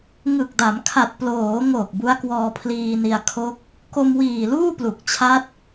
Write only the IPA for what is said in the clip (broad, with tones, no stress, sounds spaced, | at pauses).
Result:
ŋ ɯ˨˩ k̚ d a˩˦ m kʰ a˨˩ t̚ p l oː˩˦ ŋ o˨˩ k̚ b u˦˥ a̯ k w ɔː˧ pʰ l iː˧ n i˧ a̯ kʰ o˦˥ k̚ | k o˧ m w iː˨˩ l uː˥˩ p l u˨˩ k̚ t͡ɕʰ a˦˥ t̚